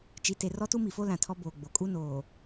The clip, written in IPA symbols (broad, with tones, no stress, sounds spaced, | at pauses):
t͡ʃ i˨ t e˨ r ɔ˦ t u˦ m i˨ f o˦ l ã˨ tʰ ɔ˦ b oː˨ ɡ͡b o˨ kʼ u˦ n oː˨